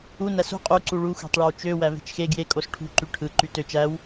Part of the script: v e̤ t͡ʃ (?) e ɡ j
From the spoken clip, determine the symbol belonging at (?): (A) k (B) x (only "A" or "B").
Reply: B